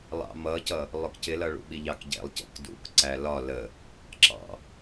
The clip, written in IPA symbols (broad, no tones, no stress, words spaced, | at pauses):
lˠɑ̰mʌcʌ | lˠʊkcɪlʌ ɭṵɓiʎɑkɟɛ̰lˠ cə̰kdṵk ǀælɒ lə | ǁɑ̰